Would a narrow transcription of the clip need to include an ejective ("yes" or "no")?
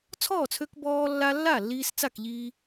no